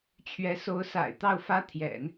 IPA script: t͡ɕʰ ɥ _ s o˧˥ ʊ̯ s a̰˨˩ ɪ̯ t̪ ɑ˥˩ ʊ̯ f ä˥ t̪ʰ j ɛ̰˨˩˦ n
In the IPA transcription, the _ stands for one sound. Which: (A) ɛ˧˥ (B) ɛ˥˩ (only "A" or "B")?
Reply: A